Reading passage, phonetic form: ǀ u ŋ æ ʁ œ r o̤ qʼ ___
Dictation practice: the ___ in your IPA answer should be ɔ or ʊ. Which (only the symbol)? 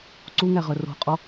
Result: ɔ